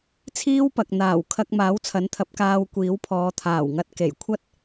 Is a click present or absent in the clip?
absent